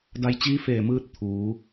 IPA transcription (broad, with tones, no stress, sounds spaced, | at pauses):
d a˧ j t͡ɕ iː˧˥ f eː˧˩ m ɯː˧ t̚ t̪ʰ uː˩˧